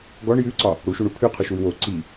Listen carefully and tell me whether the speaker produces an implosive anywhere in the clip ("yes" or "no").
no